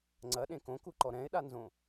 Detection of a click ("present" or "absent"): present